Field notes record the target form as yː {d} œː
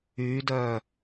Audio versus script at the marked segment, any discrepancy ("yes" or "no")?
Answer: no